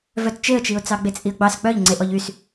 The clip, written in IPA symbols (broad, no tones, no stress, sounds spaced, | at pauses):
v œ t t͡ʃ e ə̯ t͡ʃ i ʊ̯ t͡s ɑ ɡ͡b e t͡sʼ i ə̯ ɡ͡b ɑ s k͡p œ ʎ ŋ͡ǀ e ʔ ɔ ʎ y s